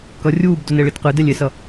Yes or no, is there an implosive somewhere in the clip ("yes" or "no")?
no